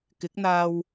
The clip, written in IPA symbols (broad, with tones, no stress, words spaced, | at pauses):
kɪ˨˥k̚n̪aː˧w